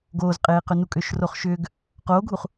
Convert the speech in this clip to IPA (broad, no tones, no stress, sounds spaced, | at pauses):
ɡ oː z qʼ eː q ʏ n u kʼ ʏː ʃ r o χ ʃ ʏː ɡ | q oː ɡʱ u χ